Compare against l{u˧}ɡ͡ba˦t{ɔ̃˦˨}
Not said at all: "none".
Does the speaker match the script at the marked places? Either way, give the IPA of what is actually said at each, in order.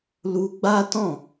u˧, ɔ̃˦˨

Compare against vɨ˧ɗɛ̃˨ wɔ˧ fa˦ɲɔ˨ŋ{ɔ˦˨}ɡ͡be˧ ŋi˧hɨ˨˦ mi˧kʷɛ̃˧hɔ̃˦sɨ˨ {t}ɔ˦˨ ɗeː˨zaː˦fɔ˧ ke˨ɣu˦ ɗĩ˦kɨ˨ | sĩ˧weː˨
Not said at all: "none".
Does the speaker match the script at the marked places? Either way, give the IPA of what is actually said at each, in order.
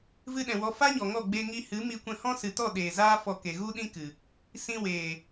ɔ˦˨, t

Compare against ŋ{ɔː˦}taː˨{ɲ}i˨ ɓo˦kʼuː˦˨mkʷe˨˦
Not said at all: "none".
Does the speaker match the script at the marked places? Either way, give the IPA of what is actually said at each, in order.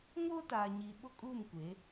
oː˦, ɲ

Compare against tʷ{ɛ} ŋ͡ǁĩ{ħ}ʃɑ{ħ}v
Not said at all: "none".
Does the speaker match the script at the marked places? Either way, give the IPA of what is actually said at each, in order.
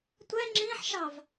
ɛ, ħ, none

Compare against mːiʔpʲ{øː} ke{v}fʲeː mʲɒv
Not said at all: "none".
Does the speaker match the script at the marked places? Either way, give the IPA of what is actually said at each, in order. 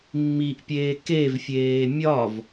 eː, v

